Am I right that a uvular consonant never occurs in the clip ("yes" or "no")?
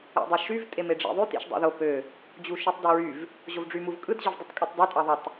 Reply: yes